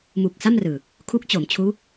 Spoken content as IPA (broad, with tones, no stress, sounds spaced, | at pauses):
m u˨˩ k̚ s a˥˩ m r ɯː˨˩ | kʰ u˦˥ k̚ t͡ɕ o˩˦ m t͡ɕʰ uː˦˥